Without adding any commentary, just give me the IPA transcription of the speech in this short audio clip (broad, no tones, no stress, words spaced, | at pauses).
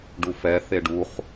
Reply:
ɖufɛ θeɖuχ